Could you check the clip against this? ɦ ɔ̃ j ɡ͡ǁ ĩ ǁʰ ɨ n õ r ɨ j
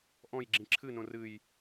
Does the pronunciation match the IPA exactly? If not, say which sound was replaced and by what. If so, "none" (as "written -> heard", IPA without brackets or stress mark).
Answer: ɦ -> ʔ